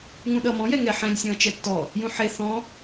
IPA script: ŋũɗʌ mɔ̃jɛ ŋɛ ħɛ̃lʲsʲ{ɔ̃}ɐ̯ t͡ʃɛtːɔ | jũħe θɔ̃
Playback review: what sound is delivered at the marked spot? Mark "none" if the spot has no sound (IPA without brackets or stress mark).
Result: ɔ̃